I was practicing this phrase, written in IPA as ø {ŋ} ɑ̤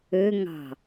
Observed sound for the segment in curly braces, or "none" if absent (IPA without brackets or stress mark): ŋ